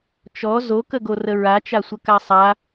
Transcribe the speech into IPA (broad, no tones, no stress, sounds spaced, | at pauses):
t͡ʃ ɔ z o k ə ɡ o r ə ɹ a t͡ʃ a sʷ ə k a sˤ a